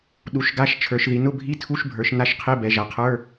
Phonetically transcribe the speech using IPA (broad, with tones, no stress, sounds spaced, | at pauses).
ɗ u˩˧ ʃ ɡ a˧˥˧ ʃ t͡ʃʰ ə˞˩˧ ʃ ð i˩˧ n ʊ˧˥˧ bʱ i˧˥˧ tʰ u˧˥˧ ʃ bʱ ə˞˩˧ ʃ n a˧˥˧ ʃ qʰ e˧˥˧ b ɛ˩˧ ʒ a˩˧ qʰ ə˞˧˥˧